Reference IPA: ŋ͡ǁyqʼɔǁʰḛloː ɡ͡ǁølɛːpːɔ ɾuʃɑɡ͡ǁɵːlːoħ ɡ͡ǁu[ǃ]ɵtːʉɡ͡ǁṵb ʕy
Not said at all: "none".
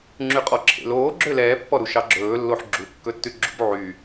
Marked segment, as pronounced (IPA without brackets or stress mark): kː